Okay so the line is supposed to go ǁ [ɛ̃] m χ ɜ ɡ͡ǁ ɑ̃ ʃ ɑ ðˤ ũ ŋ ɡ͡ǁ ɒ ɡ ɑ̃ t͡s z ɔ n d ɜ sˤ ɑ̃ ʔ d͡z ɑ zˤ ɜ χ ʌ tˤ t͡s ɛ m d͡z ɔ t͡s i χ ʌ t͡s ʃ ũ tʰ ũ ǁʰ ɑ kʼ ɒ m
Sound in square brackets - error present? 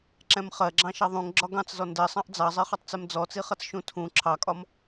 no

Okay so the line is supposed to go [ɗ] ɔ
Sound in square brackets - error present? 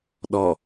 no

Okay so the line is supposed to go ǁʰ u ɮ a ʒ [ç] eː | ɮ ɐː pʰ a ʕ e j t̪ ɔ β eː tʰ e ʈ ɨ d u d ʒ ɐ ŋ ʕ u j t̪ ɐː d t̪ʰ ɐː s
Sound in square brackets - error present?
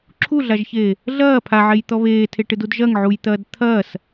no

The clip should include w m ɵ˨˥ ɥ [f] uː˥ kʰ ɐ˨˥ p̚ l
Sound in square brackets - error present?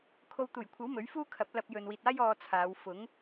no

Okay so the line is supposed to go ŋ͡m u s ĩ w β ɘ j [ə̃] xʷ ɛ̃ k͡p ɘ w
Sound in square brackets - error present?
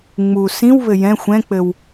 yes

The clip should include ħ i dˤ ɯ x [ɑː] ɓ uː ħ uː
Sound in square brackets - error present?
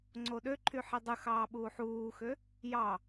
no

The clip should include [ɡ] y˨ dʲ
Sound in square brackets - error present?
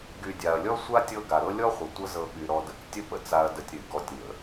no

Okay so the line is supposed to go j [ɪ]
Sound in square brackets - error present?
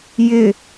no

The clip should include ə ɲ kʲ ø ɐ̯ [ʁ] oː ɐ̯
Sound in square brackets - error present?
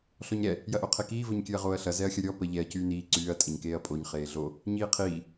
no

